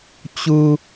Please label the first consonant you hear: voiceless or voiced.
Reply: voiceless